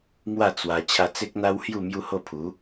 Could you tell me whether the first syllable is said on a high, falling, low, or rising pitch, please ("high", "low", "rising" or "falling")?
falling